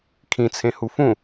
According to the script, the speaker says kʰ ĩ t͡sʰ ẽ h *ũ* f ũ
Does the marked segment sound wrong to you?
yes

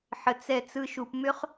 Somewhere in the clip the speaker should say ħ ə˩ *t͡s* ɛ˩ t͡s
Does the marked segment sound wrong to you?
no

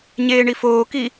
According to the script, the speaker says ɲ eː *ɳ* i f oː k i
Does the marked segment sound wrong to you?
no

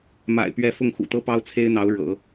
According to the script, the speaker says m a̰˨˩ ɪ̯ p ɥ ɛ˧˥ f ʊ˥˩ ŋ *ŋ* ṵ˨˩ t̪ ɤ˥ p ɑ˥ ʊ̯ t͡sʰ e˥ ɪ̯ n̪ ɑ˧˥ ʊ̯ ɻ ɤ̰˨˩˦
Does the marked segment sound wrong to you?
yes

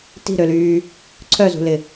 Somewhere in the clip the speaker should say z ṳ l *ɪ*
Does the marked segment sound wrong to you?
no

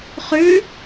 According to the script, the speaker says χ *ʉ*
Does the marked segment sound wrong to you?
no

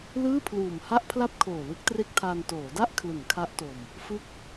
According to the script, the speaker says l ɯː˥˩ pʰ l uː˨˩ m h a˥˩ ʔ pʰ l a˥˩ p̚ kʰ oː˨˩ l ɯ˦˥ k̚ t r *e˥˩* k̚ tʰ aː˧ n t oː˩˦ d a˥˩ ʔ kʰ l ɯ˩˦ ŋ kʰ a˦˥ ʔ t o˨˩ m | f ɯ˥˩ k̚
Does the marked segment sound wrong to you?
no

